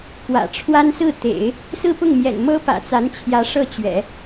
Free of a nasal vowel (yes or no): yes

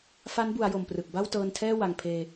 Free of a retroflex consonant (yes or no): yes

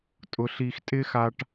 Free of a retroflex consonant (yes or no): no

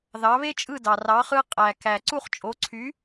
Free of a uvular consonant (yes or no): no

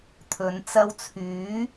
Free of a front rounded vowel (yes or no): no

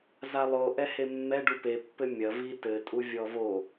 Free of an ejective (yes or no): no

